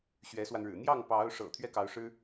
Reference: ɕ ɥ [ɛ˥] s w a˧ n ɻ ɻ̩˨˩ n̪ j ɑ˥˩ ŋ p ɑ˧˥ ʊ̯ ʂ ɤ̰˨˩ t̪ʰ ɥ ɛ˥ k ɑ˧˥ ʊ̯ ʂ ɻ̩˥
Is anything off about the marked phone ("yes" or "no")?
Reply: yes